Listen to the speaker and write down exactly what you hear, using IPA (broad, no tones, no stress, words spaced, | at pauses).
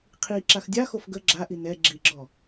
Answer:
qʰi ǁaxdʲaxof ɡə ɡ͡ǁaʔi nɛ ɡ͡ǁiɡ͡ǁɔ